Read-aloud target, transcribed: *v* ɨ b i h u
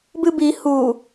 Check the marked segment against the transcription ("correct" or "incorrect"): incorrect